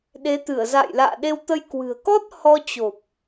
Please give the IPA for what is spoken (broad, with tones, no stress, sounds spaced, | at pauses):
ɗ e˨˦ t̪ ɨ˧˩ ə̯ z a̰ː˧˨ j l a̰ː˧˨ ɗ e˧ w t̪ ə˧ j k w ɨ̤˨˩ ə̯ k ɔ˦˥ t̚ h ɔ˧ t͡ɕ o˨˩ p̚